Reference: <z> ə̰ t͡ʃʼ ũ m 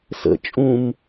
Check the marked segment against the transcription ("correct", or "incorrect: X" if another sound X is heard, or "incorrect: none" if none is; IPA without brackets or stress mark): incorrect: s